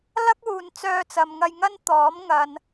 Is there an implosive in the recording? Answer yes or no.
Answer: no